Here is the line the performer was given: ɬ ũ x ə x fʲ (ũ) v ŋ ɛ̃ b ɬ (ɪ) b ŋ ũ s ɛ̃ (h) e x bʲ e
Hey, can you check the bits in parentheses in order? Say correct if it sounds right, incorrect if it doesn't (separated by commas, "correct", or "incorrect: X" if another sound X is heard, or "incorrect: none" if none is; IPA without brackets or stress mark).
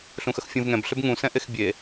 correct, incorrect: ʏ, incorrect: ʔ